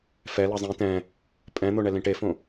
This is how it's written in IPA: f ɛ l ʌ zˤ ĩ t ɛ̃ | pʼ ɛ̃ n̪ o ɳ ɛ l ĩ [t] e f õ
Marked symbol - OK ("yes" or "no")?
no